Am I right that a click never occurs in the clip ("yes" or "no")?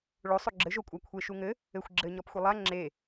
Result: no